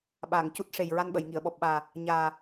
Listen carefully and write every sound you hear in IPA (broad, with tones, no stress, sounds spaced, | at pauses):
ɓ aː˨˩˨ ŋ c u˦˥ t̚ ʂ e˨˩ j ɹ a˧ n ɓ ə˨˩˨ j ŋ i˨˩˨ ə̯ ɓ ɔ˨˩ p̚ ɓ aː˨˩ | ɲ aː˨˩